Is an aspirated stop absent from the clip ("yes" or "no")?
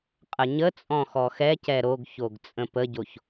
yes